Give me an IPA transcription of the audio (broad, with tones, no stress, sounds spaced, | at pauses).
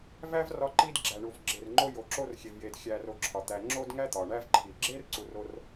v æ˥ v r ɒ˥ ǃ i˥ d ɡ͡ǁ æ˨ ɳ u˨ v ɡ͡ǁ e˨ r ŋ͡ǃ o˦ j o˨ ǁ o˦ r xʲ e˨ v j e˨ d xʲ æ˨ r o˨ ǁʰ ɒ˩ t̪ æ˨ ŋ͡ǁ o˥ d ŋ æ˥ t̪ ɒ˩ ɳ æ˦ v ǃʰ i˩ ɡ͡ǁ e˥ r ǀ u˨ r o˦ r